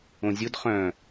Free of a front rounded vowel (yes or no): no